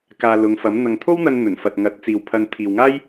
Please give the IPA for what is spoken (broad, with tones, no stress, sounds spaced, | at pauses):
k aː˧ l ʊ˨˧ ŋ f ɐ˨˥ m n̪ ɐ˨ ŋ t̪ʰ o˥ w n̪ ɐ˧ n n̪ ɵ˨˩ n f ɐ˨ t̚ ŋ ɐ˨˥ t̚ t͡s iː˨ w pʰ ɐ˧ n t̪ʰ iː˨ w ŋ aː˥ j